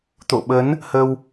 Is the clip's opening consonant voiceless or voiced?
voiceless